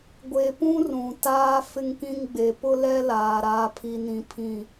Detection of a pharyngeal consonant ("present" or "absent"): absent